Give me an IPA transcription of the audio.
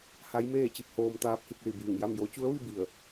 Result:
h a˧˥ j m eː˥˨ t͡ɕ i˥˨ p̚ h oː˧ m t̪ aː˧ p̚ h i˥˨ k̚ l i˧˩ b iː˧˩ ŋ j a˥˨ m j o˧˥ t͡ɕ u˧˥ ə̯ ʋ i˥˨ b i˧˩ ə̯

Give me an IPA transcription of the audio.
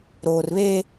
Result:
ɾ oː˨ r β eː˦

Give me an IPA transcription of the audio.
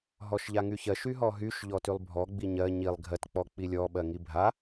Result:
ɦ ɔ ʃ ʎ a ŋ y ç ɜ ʃ y ɦ ɔ ɦ y ʃ ʎ ɔ t y lˠ bʱ ɔ ɡ͡b i ɲ ɜ ɲ i lˠ ɡʱ ɜ t k͡p ɔ k͡p i lʲ ɔ ɓ ɜ ŋ i bʱ a

